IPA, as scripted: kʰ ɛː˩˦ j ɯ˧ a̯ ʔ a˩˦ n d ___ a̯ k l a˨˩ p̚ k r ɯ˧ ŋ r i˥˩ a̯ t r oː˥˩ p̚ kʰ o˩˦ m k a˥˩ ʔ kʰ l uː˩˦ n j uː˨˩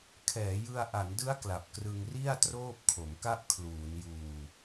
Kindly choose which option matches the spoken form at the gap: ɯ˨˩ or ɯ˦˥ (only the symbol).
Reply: ɯ˦˥